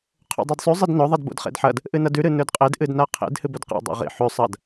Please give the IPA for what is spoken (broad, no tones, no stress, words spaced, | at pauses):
qʰo̰dˤidsˤʉ zˤɨdnɵ ðˤidbo̰dχḛdħɐd | ʔɨnɐdʉ ɾɨnɵdqʼed ʔɨdnaqʰḛd hɨbɵdqa̰ dˤo̰ʁḭ ħʉ sˤɐd